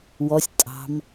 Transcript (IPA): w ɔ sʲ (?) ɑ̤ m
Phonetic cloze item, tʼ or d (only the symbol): tʼ